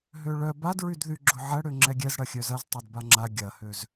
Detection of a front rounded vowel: present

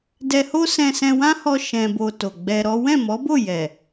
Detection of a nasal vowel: present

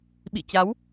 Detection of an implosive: present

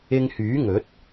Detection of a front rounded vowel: present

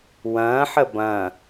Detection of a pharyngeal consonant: present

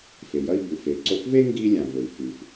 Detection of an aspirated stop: absent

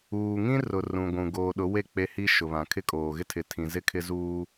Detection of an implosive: present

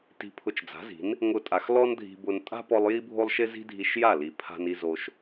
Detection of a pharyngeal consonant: absent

